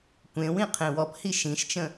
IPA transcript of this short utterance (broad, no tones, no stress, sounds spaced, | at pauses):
kʷ ẽ w ĩ qʰ ẽ w ɔ p h i ʃ ĩ ʃ t͡ʃ ə̃